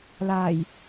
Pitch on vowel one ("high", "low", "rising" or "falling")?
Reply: low